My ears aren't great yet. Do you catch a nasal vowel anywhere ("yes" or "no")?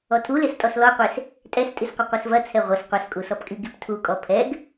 no